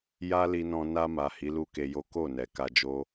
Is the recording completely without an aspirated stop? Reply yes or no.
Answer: yes